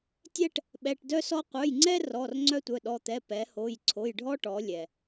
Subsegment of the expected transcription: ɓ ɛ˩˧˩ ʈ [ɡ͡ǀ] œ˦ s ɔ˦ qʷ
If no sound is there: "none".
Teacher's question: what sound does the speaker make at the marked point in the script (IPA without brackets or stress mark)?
d